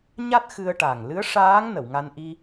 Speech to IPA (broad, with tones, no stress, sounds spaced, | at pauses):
ɲ a˦˥ t̚ x ɨ˧ ə̯ ʈ a˨˩ ŋ l ɨ˧˥ ə̯ ʂ aː˧˥ ŋ n ə˨˩˨ w ŋ a˧ n ʔ i˧